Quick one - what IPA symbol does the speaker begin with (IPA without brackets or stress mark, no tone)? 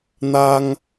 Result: n̪